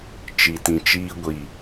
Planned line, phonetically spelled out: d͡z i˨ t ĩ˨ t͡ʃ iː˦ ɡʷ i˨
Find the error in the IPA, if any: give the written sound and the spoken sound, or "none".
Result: d͡z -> t͡ʃ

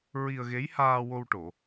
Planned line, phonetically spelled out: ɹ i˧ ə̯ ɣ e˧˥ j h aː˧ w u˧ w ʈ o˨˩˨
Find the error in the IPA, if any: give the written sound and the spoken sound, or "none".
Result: u˧ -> o˧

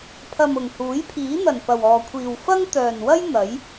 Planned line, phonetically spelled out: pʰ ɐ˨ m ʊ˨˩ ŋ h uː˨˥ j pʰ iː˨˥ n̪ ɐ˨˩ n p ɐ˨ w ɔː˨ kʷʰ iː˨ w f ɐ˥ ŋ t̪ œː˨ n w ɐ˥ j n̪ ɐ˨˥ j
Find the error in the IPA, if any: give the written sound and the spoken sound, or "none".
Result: none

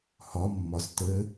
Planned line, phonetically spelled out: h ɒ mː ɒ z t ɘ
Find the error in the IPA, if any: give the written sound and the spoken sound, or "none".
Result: none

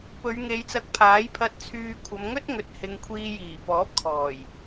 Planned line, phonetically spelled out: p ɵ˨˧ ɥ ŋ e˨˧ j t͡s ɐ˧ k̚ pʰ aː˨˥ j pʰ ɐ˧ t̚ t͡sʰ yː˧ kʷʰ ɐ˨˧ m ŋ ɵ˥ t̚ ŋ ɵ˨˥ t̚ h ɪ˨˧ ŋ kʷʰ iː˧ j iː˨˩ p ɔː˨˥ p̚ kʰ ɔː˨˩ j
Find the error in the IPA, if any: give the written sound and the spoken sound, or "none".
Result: none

